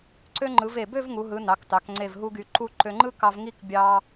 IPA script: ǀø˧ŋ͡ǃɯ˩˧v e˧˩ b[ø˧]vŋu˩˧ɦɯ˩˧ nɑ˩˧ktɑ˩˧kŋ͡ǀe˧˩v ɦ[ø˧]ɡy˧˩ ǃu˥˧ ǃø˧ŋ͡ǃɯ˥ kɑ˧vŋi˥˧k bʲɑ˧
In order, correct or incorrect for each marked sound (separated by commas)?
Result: incorrect, incorrect